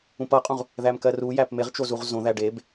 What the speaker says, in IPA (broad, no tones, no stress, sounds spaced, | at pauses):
ũ p ʌ qʼ ũ ʁ | ð æ m k ɜ r u j æ p m e ʁ t͡ʃ o z u ʁ z õ ð æ ɖ e b